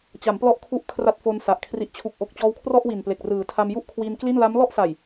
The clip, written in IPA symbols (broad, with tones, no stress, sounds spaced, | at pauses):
t͡ɕ a˩˦ m p l ɔ˦˥ ʔ kʰ u˦˥ ʔ kʰ r a˦˥ t̚ f o˧ n s a˨˩ ʔ kʰ r i˨˩ ʔ t͡ɕʰ u˨˩ k̚ ʔ o˨˩ k̚ t͡ɕ ɔː˦˥ w kʰ r ɔ˥˩ ʔ w i˨˩ n p l e˨˩ k̚ r ɯː˩˦ tʰ a˧ m j u˥˩ ʔ kʰ w iː˧ n k l i˥˩ n l a˦˥ m l ɔ˥˩ ʔ s a˨˩ j